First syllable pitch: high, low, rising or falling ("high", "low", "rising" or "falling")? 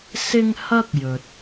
high